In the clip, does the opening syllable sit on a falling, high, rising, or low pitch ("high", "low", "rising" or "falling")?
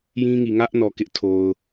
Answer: high